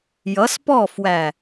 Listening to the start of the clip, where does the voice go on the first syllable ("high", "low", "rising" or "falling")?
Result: rising